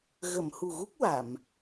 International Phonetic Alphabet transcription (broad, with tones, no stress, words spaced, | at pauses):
ɣə˨˩˨m hu˨˩ɣu˦˥k̚ wa˨˩˨m